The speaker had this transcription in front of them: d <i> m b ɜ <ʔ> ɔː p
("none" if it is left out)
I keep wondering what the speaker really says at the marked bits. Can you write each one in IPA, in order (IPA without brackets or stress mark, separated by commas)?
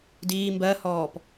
iː, h